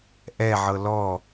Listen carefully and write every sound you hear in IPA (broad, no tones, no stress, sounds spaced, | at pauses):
ʔ ɛ ʕ ɤ l ɔ